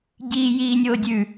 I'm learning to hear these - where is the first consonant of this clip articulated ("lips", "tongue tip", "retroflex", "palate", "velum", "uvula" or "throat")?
palate